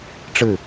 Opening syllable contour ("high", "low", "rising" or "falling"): falling